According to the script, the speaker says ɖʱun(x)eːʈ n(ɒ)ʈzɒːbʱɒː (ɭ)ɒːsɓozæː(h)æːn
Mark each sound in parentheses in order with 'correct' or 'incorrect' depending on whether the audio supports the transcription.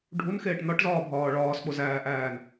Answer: correct, correct, correct, incorrect: ʔ

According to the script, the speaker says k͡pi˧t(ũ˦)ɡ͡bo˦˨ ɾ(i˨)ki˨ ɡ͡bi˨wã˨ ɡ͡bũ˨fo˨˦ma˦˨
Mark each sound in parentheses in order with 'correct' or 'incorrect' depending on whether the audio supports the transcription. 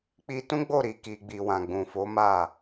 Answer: correct, correct

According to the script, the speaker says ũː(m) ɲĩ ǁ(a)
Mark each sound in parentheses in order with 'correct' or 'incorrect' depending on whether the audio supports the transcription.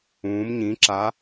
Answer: correct, correct

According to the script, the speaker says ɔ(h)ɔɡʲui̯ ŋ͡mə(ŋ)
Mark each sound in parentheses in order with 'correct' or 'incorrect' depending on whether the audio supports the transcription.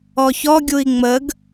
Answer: incorrect: ç, incorrect: ɡ

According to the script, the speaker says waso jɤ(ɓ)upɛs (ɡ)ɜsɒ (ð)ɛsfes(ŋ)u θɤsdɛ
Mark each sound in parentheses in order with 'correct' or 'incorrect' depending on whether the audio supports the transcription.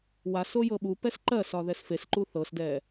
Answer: correct, incorrect: ǃ, correct, incorrect: ǃ

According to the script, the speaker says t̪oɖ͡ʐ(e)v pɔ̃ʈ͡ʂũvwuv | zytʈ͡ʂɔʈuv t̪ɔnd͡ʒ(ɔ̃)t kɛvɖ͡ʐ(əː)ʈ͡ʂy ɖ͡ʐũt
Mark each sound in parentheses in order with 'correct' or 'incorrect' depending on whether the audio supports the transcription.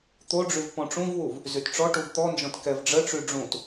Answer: incorrect: y, correct, incorrect: ə

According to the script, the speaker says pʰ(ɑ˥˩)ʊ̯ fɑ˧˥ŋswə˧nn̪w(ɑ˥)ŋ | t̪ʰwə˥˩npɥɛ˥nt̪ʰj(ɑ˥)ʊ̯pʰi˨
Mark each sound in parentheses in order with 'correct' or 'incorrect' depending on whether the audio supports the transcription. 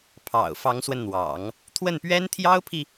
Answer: incorrect: ɑ̰˨˩, incorrect: ɑ̰˨˩˦, correct

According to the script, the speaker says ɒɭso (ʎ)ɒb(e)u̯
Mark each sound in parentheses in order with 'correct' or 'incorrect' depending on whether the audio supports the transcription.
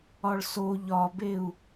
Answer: correct, correct

